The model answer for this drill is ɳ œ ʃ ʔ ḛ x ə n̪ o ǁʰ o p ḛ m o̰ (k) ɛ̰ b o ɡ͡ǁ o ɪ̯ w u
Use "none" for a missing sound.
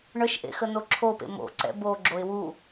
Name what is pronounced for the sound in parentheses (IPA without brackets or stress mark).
ǀ